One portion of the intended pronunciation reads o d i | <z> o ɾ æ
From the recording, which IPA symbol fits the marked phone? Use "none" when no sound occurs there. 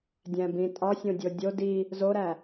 z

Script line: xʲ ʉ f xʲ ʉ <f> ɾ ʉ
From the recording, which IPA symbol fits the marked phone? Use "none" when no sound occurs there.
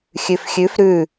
f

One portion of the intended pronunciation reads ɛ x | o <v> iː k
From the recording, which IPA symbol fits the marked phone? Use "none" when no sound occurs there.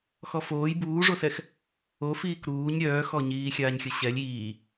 f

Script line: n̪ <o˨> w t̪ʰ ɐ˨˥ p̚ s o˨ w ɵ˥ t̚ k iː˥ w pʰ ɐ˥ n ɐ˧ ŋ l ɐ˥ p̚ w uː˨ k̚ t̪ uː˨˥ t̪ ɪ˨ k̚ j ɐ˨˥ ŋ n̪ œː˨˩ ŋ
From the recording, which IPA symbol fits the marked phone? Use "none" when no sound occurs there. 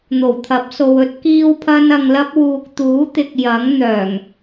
o˨˩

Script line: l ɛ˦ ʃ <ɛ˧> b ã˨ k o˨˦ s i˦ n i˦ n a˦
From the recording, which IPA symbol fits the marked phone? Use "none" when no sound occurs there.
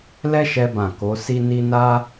ɛ˧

